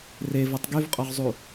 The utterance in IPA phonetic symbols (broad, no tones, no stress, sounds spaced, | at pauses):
r e v o tˤ ɡ y v qʼ ɔ ʁ zˤ u